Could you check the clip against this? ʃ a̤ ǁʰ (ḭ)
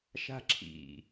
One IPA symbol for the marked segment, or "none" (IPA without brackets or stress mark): ḭ